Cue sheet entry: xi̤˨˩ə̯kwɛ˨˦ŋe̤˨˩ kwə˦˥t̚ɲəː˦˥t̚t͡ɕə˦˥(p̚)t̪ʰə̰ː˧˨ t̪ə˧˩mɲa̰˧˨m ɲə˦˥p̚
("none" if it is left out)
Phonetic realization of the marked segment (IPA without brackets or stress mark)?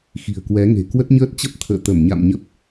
p̚